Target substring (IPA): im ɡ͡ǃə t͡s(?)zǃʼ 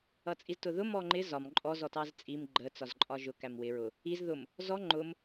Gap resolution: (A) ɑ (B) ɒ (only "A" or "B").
B